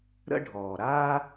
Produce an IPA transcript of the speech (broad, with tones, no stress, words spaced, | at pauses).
ɾə̰˦ɖʱɔː˨ɾa˦